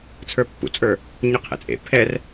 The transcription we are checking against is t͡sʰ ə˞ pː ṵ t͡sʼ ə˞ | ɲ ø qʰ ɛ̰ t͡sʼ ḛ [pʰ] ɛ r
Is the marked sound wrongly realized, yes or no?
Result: no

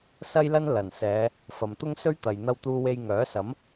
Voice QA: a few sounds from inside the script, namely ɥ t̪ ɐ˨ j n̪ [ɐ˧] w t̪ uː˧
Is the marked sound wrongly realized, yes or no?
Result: no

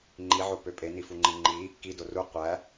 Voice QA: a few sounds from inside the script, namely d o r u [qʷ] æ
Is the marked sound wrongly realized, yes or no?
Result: no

